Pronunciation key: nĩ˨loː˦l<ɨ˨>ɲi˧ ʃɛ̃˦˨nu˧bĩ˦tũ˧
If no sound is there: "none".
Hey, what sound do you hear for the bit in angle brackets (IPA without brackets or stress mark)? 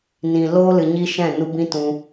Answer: ɨ˨